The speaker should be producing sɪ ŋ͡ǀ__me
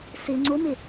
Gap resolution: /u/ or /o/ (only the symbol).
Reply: o